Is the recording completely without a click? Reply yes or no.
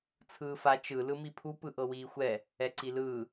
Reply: no